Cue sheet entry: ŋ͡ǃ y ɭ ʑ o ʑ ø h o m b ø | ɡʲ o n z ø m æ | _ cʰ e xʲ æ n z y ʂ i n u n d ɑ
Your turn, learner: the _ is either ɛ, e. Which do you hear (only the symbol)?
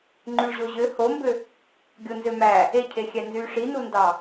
e